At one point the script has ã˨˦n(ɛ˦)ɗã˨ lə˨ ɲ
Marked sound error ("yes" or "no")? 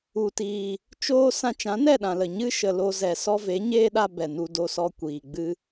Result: yes